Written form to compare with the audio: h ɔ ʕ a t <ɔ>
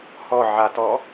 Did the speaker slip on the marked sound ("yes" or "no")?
no